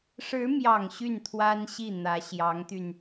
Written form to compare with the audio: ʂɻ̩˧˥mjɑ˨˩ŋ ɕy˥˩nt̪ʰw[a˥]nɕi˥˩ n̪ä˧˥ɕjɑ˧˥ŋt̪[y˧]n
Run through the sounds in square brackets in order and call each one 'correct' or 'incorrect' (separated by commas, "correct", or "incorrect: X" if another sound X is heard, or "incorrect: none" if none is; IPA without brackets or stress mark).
correct, correct